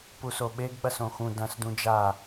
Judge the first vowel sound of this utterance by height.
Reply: high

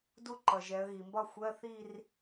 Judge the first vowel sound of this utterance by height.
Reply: high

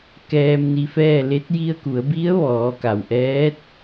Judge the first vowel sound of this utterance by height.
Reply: mid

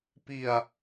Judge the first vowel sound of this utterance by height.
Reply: high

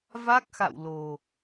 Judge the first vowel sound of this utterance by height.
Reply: low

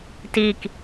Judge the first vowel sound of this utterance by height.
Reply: high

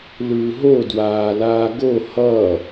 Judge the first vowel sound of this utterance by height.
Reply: high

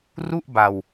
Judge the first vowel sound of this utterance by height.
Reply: high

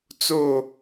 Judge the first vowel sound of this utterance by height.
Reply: mid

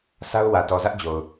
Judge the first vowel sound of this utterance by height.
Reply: low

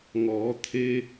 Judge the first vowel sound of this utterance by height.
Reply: mid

